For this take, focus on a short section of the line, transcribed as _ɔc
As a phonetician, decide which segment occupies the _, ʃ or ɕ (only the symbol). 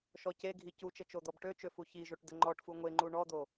ʃ